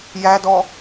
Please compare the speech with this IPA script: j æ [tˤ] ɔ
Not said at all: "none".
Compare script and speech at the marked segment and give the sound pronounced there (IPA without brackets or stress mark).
d